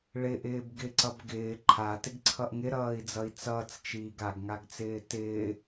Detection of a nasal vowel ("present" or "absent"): absent